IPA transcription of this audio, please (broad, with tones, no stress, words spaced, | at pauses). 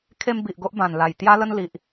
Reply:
kʰe˧m bi˨ʔ ɡo˦ʔbã˨˩nla˨˩j t̪ja˦lə˦n li˨ʔ